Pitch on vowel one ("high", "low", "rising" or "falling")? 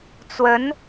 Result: rising